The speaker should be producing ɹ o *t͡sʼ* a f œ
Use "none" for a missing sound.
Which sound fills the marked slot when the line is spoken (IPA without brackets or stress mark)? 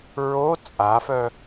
t͡sʼ